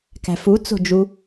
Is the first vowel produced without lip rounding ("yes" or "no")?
yes